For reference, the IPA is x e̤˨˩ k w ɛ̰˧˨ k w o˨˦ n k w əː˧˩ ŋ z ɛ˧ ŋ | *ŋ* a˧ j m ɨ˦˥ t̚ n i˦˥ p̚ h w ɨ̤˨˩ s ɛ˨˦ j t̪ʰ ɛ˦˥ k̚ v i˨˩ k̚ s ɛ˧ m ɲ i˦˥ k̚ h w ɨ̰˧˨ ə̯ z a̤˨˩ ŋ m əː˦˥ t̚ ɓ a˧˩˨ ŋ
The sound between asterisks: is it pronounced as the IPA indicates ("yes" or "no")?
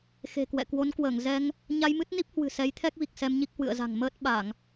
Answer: no